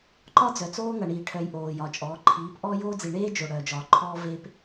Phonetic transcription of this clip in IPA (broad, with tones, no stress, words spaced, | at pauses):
ǃɒ˦d͡zœ˨t͡soː˦ ŋʌ˨ɳiː˨ʈʰœ˨j ʔoː˨jɒ˨ t͡ʃʼɔː˨˦ ǃʰiː˨˦p ʔɔː˦joː˦d͡zi˨ ɳeː˦ d͡ʒo˨ɽœː˨d͡ʒɒː˨ ǃʰɔː˦ve˦p